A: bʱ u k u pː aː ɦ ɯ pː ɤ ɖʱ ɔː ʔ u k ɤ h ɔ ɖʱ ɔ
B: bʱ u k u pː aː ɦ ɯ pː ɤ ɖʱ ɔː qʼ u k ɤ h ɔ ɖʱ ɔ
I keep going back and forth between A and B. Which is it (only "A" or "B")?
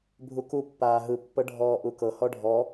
A